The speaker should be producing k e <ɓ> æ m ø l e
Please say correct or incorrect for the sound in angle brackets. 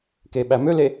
correct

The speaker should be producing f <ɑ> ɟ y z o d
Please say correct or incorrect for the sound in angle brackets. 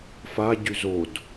incorrect: a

